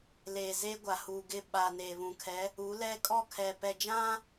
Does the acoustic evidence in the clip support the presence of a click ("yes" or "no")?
no